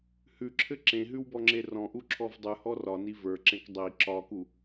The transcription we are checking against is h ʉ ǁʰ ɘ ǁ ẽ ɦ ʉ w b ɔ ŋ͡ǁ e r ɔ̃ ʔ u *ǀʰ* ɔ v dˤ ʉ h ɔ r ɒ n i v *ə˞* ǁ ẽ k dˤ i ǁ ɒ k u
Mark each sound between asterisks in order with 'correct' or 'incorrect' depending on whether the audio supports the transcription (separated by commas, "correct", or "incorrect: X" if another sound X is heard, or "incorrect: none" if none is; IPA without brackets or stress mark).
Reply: incorrect: ǁʰ, correct